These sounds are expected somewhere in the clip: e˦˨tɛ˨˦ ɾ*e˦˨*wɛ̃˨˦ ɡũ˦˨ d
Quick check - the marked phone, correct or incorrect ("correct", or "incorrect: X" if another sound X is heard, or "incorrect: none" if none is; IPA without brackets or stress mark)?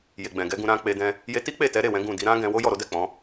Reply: correct